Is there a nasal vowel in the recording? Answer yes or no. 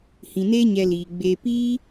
yes